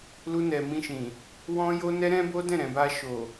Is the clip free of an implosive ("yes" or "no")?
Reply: yes